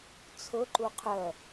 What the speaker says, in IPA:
t͡sʰ ʊ ǃ u qʰ œ

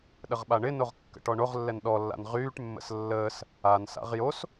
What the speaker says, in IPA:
ɗ ə ʁ ɓ a ɳ ɪ n o ʁ kː ə̰ ʈ ɔ ɳ o ʁ lː ɛ n ɗ ɔ lː a̰ n ʁ yː ʈ mː ə̰ s lː əː s | a n s a̰ ʁ j o s

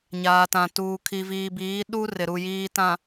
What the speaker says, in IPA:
ɲ aː˨ t ã˨ t uː˨ kʰ i˨ v iː˨ b iː˨˦ ɗ u˦ r ɪ˨ ɾ u˨ j iː˨ t ã˨

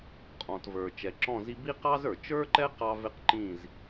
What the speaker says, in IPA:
qʼ ɔ̃˨ t v ə˞˨ t͡ʃ ɛ˨ ǁ ɔ̃˦˨ z i˦ b i˦ q ɑ˦ z ə˞˨ t͡ʃ ə˞˦ ǃ ɛ˦ q ɑ˦ v ɪ˦ q ǃ ĩ˦˨ z

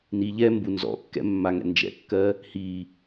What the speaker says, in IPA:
n i ʎ ɛ m b u n z ɔ̰ kː ɛ̰ mː a ŋ ɛ̰ n d͡ʒ ɛ̰ kː ɜ | h i

